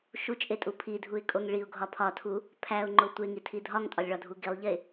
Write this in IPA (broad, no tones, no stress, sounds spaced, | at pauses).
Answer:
ʃ u t͡ʃʼ e tʼ u pʰ i dʱ u ɪ̯ kʼ o ŋ ɭ i ʊ̯ ɡʱ ɒ pʰ ɒ tʰ u | pʰ æ ʊ̯ ŋ͡ǃ o tʷ e ŋ i tʰ i dʱ ɒ ŋ tʼ ɒ lʲ ɭ ɒ dʱ u ɡ i lˠ ʎ e